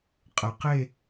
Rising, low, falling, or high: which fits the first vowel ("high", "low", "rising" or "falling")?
low